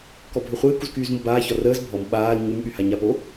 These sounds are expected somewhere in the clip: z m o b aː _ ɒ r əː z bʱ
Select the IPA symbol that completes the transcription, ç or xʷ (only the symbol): ç